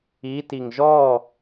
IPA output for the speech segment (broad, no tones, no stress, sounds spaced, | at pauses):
i t i ŋ ʒ ɔ